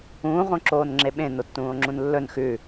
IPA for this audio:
ũː ʁ õ ǁ oː n ŋ͡ǁ e ɓ ẽ n o tː ũː o̯ ŋ͡ǁ ũ n lː ɵ n x ʉ

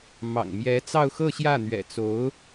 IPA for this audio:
m ɑ̰˨˩ ŋ m j ɛ˧˥ t͡s ɑ˥˧ ʊ̯ x ɤ˥˧ ɕ j ä˥˩ n̪ ɥ ɛ̰˨˩ t͡s o˧˥ ʊ̯

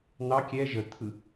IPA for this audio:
n̪ ɑ kʲ ɛ ʒ ə t̪ʰ ɯ

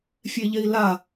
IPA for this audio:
fʲ e ʎ e i̯ l a

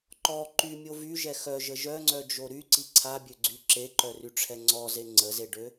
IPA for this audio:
ǃ ɔ ǃ y mʲ o v y ʒ ɛ x œ ʒ ə ʒ œ ŋ͡ǀ œ d͡ʒ o ɾ y ǀ i ǀʰ a bʲ ø ɡ͡ǀ y ǁ e ǃ œ r y ʈ͡ʂʰ ɛ ŋ͡ǀ ɔ z e ŋ͡ǀ ə z e ɖ ø

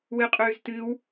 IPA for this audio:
w ɨ qʼ ʉː z t ɨ w

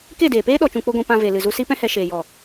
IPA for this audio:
k e˦˨ d eː˨ p eː˦ ɗ ɔ˧ t͡ʃ ũ˧ k͡p o˦ ɡʷ ĩ˧ p ã˧ v e˨ l ɨ˨ z u˧ s i˦ p ɛ̃˦ h ɛ˧ ʃ eː˨ j ɔ˨

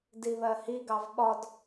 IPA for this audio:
d i β ɜ h i ɡ ɑ v ɓ ɒ d

